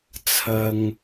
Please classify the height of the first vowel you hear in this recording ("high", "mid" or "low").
low